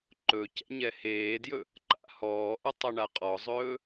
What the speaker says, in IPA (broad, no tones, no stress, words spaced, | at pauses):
ǃɵ cɛ̰ɲɛheːdjɵ | ǃa̰hɔːʔə tˤəɳaqʼɔzˤɵː